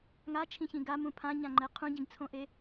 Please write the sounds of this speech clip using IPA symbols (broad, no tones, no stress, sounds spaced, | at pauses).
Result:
ŋ a t͡ʃʰ ĩ ç ĩ ɡ a m ũ pʰ ã ɲ ã ŋ͡ǃ ɛ qʰ ũ ɟ ĩ ɡ t͡sʰ õ ʔ e